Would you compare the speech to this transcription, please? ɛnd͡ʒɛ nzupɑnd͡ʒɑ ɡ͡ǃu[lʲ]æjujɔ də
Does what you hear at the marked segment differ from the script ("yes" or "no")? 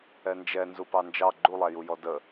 yes